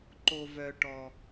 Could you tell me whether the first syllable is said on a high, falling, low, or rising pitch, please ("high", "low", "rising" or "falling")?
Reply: low